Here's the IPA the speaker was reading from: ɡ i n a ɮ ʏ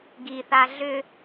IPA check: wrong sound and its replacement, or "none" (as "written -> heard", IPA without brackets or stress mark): n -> θ